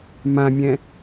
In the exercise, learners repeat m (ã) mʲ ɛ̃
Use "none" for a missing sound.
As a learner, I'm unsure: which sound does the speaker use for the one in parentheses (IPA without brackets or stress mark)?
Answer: ã